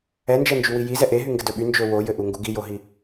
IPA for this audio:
ɛ n d͡ʒ ɛ n d͡ʒ y w i j i z ɛ ʔ e ɦ y ŋ ɡ ɘ d ɵ ɓ y n d͡ʒ ɵ w o j ɘ ʔ u ŋ ɡ u ɡ i j o ɦ i

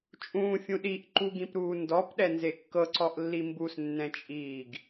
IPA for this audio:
t͡ʃʼ ũː fʲ ũ ɗ i ʔ ǃ u ɡ ĩ p ɾ uː n d ɔ p ɗ ɛ n z e kː ɤ ǀ ɔ ʔ lː i m b u s nː ɛ̃ t͡ʃʼ iː ɡ

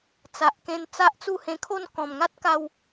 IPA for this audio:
t͡s a˨ ʔ k ẽ˧ n t͡s a˦ ʔ t͡s u˥˧ h ẽ˧ kʰ o˥˧ n k ɔ̃˨˩ m ŋ a˦ t̚ k a˧ w

